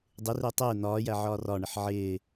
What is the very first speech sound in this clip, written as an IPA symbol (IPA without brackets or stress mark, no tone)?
dˤ